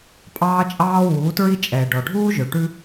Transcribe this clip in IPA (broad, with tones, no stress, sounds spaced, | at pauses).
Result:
pʼ ɑː˦ t͡ʃʼ ɑː˦ w uː˨˦ t ɹ i˦ t͡ʃʼ ɛː˨ ɖ ɔ˨ ɖʱ uː˦ ʒ ø˨ ʈ ʉ˦